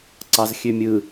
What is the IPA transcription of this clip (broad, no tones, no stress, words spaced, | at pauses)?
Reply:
ǀɑzxʲømʲɯ